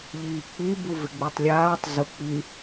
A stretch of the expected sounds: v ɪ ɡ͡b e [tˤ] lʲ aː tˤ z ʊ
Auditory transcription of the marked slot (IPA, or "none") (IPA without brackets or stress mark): tˤ